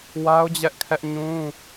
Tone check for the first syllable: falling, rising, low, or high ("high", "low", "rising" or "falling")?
high